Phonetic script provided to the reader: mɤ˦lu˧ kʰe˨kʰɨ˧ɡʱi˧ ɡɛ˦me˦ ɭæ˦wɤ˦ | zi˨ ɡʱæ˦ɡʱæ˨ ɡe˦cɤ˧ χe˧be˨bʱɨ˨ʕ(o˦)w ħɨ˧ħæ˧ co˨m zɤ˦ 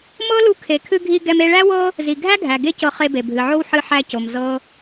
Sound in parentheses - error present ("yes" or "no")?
no